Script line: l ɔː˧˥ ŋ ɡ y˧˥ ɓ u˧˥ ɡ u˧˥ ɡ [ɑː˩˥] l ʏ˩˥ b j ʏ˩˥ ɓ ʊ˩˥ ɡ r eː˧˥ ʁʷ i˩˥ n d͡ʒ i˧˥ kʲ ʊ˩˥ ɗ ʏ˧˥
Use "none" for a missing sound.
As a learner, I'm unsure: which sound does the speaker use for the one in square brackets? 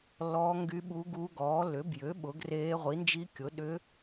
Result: ɔː˩˥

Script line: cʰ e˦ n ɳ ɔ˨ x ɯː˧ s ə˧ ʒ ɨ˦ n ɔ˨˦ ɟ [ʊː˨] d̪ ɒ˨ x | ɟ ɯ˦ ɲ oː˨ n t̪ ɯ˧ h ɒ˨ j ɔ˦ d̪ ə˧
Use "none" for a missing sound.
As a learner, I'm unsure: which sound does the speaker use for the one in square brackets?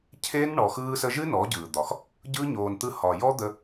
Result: ɯː˨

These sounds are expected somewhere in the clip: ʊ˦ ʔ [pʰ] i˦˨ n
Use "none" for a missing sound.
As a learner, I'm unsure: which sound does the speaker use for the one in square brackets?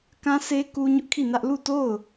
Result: kʰ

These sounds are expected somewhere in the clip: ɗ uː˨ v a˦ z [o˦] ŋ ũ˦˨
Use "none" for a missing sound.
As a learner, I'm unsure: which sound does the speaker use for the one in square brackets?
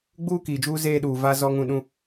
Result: ɔ˦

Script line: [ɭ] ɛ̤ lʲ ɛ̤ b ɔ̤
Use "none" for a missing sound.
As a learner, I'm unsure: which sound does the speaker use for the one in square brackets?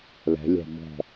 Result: l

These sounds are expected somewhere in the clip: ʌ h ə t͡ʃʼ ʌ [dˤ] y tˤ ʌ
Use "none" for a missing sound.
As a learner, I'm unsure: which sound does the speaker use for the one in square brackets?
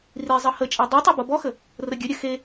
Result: dˤ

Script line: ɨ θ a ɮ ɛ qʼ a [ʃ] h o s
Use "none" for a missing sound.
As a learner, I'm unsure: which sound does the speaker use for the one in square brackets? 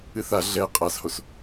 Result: s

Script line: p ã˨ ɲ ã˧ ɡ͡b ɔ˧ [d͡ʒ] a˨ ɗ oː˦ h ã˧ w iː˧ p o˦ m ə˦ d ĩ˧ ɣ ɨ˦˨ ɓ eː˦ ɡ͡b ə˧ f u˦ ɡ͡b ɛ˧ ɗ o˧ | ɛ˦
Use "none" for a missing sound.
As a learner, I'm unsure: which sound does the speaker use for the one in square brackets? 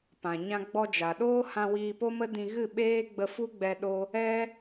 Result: d͡ʒ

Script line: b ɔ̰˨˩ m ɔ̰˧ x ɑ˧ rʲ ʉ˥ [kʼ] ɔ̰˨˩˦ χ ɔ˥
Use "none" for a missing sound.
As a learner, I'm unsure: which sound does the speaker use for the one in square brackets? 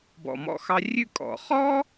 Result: kʼ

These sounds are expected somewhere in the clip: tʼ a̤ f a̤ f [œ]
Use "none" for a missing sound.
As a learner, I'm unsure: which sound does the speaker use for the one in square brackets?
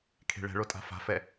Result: ɛ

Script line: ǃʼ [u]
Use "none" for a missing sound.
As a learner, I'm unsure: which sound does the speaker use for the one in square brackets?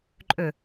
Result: ø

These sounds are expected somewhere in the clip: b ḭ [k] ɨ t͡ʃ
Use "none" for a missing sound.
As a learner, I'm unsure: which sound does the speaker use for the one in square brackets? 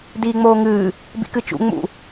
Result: k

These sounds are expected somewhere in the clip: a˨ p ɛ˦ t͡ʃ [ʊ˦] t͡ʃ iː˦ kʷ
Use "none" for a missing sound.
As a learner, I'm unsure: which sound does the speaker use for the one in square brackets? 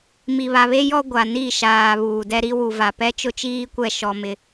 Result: ʊ˦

